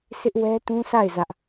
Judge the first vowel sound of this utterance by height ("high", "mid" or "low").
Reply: high